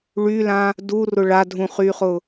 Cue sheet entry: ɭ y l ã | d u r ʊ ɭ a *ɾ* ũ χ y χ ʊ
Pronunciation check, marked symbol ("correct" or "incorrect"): incorrect